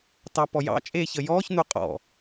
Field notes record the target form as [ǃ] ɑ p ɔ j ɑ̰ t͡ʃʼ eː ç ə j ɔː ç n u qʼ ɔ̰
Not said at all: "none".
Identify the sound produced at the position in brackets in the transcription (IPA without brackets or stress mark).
t